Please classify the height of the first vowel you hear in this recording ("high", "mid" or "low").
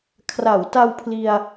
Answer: low